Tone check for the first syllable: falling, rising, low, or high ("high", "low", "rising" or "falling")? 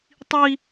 high